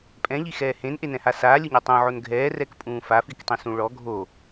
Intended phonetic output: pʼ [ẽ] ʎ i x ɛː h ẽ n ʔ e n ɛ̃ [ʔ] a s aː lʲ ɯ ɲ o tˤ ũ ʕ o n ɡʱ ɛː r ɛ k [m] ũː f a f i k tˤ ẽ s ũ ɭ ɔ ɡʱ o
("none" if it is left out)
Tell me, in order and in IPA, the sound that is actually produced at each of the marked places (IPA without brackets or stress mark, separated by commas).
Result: ɛ̃, h, pʼ